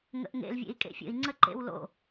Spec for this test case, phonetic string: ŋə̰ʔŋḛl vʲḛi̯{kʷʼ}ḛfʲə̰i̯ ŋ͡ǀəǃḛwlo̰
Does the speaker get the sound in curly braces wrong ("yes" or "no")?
yes